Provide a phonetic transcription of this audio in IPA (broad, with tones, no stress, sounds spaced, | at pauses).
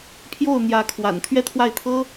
pʰ j o˥˩ ʊ̯ n̪ j ä˧˥ kʰ w a̰˨˩ n t̪ʰ ɥ ɛ˥˧ t̪ʰ w a˥˩ ɪ̯ t̪ʰ ɤ˥